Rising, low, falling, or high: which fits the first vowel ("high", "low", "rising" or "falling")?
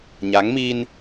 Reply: rising